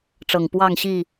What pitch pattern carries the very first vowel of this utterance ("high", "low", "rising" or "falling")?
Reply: low